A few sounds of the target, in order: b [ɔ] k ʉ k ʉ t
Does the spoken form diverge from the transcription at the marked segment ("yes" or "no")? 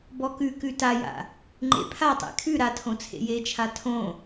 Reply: no